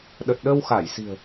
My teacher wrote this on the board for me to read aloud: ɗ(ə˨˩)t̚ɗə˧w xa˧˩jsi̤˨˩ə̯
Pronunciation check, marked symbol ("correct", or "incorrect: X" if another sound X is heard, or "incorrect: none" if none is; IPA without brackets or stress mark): correct